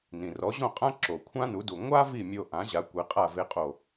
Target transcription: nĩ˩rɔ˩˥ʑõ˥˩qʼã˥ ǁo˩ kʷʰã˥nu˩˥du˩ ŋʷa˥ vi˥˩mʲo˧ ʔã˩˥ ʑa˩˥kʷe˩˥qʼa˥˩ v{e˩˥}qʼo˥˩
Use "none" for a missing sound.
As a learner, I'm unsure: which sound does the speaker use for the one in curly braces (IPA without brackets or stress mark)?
e˥